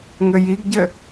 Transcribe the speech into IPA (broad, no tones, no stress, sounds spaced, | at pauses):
ŋ ɘ j i ɡ ɟ ɘ